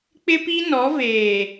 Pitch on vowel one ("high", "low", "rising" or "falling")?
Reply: high